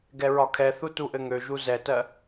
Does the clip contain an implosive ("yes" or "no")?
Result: no